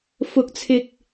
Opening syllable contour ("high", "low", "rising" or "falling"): rising